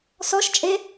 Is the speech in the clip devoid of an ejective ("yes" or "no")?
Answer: no